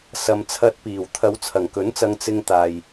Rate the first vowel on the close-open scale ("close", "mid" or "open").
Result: open